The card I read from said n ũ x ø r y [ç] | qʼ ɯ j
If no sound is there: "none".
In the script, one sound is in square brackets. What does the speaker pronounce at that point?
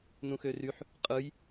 ħ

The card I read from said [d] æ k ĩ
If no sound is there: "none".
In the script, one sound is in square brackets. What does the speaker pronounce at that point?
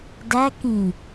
d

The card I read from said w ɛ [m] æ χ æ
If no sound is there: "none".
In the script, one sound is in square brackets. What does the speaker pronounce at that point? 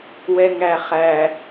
ŋ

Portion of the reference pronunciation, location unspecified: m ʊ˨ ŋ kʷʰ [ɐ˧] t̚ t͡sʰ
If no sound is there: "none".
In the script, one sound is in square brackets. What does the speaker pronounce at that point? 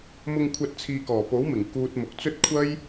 ɐ˨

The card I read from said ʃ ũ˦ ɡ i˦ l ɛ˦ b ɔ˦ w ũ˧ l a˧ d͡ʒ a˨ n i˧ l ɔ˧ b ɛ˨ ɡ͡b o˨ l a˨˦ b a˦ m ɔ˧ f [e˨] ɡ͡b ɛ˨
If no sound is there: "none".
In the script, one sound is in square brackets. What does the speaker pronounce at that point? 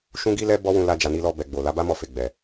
e˨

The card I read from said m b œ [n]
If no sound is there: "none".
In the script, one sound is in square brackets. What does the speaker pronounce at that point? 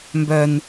n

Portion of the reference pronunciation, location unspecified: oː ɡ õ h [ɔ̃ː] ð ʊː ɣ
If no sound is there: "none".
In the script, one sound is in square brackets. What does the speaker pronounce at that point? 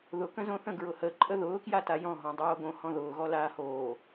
ɔ̃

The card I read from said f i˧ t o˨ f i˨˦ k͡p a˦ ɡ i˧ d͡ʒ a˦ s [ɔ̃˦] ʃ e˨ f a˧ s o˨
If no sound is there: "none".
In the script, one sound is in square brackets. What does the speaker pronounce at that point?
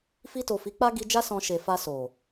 ɔ̃˧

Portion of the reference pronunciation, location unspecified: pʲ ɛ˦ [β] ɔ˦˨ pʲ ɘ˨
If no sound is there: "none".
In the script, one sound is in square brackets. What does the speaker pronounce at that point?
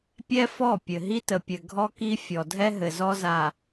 f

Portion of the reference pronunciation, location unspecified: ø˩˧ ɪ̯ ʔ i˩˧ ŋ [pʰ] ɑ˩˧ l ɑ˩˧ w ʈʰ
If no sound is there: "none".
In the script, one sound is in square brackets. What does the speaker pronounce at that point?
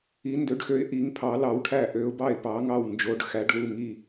pʰ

